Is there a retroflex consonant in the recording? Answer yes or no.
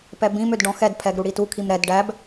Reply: yes